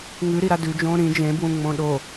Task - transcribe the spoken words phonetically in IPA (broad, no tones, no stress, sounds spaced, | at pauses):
ŋ ʉ ɾ i ɾ a d ʉ d͡ʒ õː ɾ ĩ d͡ʒ ẽ b w ũ ŋ͡m õ ɗ o